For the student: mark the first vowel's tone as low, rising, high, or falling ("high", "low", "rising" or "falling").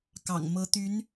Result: low